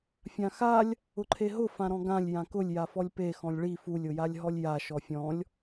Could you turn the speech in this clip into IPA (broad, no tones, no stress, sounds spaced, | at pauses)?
fʲ ã x a lʲ | ʊ ǃʰ e ɦ ʊ f ã ɾ ɔ̃ ɡ ã lʲ j ã k ʊ lʲ j a f ɔ lʲ p e x ɔ̃ lʲ ɭ i f u lʲ ʊ j a lʲ ɦ ɔ lʲ j a ʃ ɔ fʲ ɔ̃ lʲ